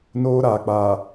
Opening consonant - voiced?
yes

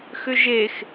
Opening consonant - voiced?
no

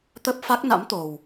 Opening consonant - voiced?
no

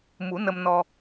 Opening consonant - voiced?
yes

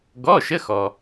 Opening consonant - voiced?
yes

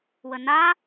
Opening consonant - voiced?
yes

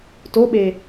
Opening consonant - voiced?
no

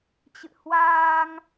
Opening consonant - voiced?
no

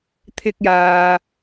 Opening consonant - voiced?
no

